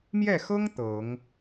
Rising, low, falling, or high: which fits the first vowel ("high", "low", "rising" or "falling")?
falling